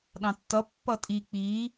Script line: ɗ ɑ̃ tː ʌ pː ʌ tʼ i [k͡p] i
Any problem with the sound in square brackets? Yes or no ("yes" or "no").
no